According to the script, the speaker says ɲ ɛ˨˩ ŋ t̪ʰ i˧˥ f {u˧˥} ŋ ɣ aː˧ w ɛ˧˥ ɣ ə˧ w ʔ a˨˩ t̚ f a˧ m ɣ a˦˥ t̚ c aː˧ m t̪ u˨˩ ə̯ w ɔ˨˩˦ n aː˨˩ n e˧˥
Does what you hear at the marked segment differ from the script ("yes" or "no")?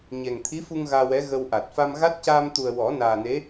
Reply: yes